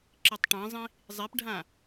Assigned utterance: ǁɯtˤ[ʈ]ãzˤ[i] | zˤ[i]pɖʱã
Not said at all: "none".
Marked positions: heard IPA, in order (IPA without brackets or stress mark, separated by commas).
ʈ, ĩ, e